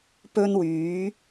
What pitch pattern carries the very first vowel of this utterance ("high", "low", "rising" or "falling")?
high